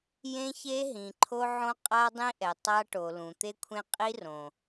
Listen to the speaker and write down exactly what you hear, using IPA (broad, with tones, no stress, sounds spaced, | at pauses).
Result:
j ẽ˦ ç e˦ ɦ ĩ˨ ǃʰ o˦ ʕ õ˦ qʼ a˦ dˤ ĩ˦ ʔ ɛ˨ tˤ a˦ ʈ o˨ l ũ˨ t̪ e˦ kʷʰ ẽ˦ qʼ i˦ r õ˨